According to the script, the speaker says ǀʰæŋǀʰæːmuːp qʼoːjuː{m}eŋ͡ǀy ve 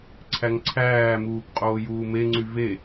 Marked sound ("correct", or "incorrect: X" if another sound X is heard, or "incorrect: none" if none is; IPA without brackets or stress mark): correct